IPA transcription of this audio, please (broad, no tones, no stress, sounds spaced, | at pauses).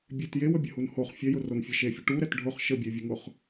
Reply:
bʲ e t j e w ə bʲ ə h u n h o χ fʲ ɛ j ʊ r o n fʲ e ʃ e fʲ ʊ ʈ u ɾ ɛ t ɖʱ ʊ χ ʃ ə bʲ e vʲ ə ŋ ʊ χ